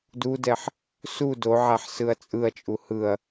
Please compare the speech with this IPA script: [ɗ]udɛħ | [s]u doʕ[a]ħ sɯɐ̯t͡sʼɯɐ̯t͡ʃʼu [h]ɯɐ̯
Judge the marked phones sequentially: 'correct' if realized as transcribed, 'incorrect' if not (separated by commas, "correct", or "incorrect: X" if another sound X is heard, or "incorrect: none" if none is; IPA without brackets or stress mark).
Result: incorrect: d, correct, correct, correct